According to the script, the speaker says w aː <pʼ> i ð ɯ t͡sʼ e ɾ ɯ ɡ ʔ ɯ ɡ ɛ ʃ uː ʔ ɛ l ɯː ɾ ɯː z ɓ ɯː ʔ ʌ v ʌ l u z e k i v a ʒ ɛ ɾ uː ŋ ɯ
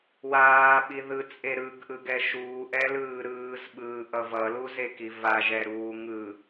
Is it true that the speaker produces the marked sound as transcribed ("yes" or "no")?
no